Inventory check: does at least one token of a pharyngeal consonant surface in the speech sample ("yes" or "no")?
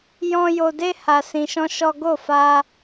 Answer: no